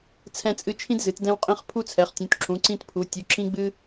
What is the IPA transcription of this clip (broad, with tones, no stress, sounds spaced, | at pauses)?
t͡sʰ ɛ̃˦ t͡sʼ ɨ˦ t͡ʃʰ ĩ˦ d z ɨ˩˧ t d ɛ̃˦ w qʼ ĩ˦ χ pʰ u˦ t͡sʰ ɛ˩˧ χ tʲ ũ˩˧ t ǁ ũ˩˧ ǀ ĩ˦ t pʰ u˩˧ tʲ u˩˧ ǁ ĩ˦ ɡ͡b ɨ˦